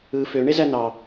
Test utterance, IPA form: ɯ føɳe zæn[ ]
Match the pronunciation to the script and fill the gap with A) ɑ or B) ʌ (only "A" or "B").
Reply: A